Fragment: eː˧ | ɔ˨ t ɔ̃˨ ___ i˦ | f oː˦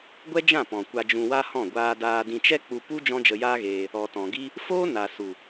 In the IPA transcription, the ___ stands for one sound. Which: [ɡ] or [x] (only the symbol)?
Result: ɡ